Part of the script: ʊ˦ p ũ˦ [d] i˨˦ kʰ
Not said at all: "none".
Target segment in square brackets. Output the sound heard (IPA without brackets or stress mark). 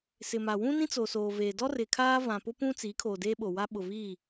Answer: t͡s